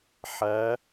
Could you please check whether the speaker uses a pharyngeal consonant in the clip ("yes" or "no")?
yes